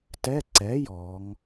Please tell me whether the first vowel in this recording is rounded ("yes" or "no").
no